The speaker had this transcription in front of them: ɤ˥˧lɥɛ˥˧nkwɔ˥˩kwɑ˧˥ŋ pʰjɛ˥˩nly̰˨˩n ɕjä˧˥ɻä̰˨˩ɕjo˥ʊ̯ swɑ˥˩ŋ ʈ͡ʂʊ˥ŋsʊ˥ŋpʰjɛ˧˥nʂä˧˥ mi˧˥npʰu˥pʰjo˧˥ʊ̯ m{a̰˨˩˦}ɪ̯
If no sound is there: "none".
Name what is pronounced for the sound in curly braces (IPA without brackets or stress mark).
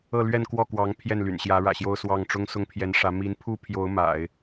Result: a̰˨˩˦